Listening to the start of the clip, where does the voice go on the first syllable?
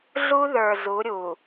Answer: high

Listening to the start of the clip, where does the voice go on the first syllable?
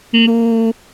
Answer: high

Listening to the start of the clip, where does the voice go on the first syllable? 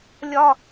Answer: high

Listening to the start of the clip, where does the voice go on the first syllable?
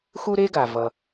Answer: high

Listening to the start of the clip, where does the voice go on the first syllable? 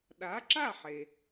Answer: rising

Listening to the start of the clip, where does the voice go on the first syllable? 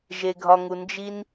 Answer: low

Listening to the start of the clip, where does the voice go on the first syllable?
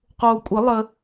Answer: low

